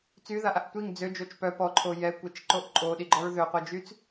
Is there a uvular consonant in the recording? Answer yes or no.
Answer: yes